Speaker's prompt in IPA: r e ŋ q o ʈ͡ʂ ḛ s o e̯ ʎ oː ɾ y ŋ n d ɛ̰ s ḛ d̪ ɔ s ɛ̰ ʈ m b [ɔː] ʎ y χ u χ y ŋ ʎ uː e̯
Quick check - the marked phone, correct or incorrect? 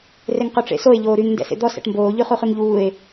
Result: incorrect